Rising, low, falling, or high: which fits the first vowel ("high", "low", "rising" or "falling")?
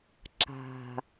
low